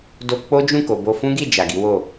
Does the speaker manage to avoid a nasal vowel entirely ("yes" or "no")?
no